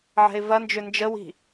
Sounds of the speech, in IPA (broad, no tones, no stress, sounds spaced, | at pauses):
ʕ ɛ̤ ɪ̯ v ɐ n d͡ʒ ʏ n d͡ʒ ə w i̤